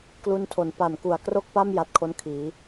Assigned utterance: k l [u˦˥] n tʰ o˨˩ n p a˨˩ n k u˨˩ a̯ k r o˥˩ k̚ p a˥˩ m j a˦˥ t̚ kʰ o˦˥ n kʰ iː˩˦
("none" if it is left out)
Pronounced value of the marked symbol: u˦˥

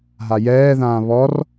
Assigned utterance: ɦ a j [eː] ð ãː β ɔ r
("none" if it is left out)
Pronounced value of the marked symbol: ɛː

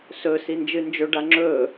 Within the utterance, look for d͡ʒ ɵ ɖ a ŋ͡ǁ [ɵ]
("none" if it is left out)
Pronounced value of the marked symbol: ɵː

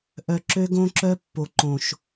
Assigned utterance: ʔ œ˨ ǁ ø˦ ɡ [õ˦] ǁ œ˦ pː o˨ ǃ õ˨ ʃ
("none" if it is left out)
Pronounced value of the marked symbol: õ˦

